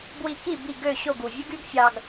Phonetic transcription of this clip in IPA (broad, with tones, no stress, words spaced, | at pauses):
bwi˧ki˥˩bi˥˩ ɡø˥˩ ɕo˥˩ɡu˩ vʲɯ˥ɡy˥ɡfʲɑ˧ɡ